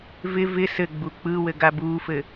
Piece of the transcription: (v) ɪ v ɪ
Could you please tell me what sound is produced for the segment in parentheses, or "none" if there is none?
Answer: v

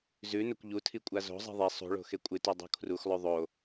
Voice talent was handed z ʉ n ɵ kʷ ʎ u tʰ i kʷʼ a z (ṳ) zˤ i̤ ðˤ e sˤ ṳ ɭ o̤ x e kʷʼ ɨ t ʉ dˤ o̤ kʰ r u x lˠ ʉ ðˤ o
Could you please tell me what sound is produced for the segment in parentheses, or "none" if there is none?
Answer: o̤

